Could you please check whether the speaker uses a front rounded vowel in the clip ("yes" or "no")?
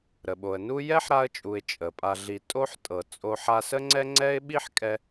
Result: no